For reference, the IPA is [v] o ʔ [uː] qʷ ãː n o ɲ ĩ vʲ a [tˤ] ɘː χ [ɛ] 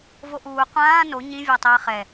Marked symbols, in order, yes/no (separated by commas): yes, yes, yes, yes